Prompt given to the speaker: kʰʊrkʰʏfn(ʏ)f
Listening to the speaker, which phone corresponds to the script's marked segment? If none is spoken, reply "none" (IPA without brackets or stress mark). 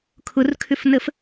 ə